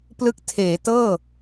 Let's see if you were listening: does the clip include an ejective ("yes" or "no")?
no